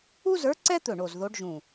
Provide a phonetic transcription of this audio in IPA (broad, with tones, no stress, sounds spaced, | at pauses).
u˥ z ə˞˧˥ ǀ ɛ˥ t̪ ɵ˧˩ ɳ o˧˩ z ð o˧˥ ɖ ʒ ũ˧˩